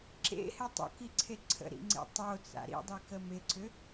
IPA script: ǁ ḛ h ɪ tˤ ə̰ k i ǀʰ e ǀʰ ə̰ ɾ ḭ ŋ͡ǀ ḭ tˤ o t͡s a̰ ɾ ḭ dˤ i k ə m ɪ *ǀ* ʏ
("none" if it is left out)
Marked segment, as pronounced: ǀ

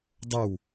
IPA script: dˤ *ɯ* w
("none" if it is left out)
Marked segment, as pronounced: ə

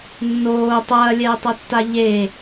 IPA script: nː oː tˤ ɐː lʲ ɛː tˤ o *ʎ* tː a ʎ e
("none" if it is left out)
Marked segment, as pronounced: none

